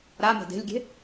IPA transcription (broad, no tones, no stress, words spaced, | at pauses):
ɾame̤ de̤lʲɡʲe̤